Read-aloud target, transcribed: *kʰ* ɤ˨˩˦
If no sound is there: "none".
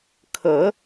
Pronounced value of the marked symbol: kʰ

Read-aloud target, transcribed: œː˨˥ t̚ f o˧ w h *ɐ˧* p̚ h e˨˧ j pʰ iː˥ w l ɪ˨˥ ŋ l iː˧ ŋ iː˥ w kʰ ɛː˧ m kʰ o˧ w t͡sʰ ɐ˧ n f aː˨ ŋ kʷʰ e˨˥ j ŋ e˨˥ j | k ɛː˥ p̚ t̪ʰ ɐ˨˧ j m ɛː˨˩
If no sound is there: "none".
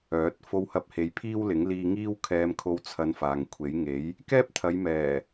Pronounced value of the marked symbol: ɐ˧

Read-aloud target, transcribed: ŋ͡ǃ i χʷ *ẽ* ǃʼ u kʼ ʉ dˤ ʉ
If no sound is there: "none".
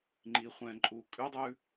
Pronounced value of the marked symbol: ɛ̃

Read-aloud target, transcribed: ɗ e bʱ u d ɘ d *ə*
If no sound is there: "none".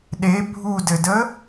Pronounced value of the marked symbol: ə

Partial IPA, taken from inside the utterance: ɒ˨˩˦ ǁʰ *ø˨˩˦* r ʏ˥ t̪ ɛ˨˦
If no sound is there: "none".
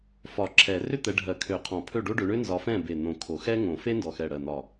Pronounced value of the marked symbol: ɛ˨˩˦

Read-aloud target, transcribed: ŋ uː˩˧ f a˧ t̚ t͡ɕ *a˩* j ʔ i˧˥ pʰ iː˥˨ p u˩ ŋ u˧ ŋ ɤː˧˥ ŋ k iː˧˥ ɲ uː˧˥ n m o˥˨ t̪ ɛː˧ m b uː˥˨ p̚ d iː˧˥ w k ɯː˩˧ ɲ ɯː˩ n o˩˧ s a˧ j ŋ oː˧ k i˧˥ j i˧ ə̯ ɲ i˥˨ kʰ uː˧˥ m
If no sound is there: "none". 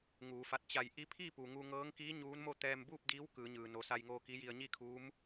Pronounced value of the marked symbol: a˧˩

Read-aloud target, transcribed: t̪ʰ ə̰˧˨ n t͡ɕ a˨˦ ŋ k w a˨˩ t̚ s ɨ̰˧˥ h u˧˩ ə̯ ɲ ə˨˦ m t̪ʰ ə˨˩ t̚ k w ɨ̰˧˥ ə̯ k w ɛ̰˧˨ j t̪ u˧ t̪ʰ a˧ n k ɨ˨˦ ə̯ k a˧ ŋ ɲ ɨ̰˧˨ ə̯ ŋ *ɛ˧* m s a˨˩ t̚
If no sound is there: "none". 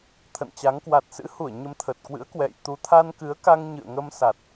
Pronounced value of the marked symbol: ə˧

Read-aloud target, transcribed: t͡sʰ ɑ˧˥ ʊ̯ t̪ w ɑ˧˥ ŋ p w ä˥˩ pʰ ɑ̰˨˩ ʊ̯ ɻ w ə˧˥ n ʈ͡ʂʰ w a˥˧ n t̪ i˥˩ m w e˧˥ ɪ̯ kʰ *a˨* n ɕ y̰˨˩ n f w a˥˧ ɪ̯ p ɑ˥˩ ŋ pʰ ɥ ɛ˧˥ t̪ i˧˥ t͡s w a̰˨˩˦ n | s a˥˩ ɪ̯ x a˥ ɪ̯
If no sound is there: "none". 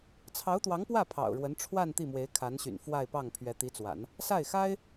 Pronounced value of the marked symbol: a˧˥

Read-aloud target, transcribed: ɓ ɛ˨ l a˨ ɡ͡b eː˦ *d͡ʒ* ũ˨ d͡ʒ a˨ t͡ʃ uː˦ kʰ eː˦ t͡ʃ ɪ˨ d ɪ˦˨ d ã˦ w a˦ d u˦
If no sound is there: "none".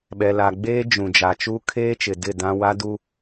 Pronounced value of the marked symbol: d͡ʒ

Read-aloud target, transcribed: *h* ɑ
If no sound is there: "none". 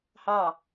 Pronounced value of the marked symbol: h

